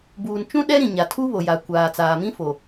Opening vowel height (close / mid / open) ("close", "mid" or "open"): close